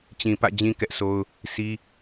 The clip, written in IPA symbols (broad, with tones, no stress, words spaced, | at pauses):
t͡ɕĩ˨pä̰˦˨d͡ʑĩ˦ kɛ˦ʔso˦ʊ̯ | si˦